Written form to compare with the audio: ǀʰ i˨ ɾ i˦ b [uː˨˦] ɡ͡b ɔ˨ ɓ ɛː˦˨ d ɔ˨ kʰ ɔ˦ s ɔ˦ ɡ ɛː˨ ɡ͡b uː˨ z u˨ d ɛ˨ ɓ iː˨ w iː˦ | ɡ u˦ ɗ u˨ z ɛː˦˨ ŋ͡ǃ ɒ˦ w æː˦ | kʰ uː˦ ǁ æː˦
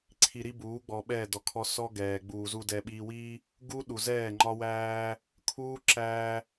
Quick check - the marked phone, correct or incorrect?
correct